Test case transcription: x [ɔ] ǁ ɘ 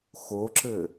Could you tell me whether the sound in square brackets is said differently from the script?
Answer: yes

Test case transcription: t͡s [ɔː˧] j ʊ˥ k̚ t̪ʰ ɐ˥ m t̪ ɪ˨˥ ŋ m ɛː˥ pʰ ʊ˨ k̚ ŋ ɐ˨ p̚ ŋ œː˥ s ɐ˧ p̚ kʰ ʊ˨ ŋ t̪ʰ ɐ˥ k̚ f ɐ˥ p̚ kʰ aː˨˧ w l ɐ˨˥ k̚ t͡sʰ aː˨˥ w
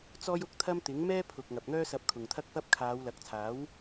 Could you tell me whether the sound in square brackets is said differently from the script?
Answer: yes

